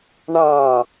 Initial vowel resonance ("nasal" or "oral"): nasal